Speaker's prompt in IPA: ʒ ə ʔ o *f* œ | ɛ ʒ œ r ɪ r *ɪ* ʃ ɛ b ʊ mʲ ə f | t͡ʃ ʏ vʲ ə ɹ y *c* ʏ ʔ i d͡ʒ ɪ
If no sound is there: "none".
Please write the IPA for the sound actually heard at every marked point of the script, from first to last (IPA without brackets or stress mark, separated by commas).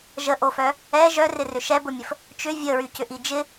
f, ʏ, c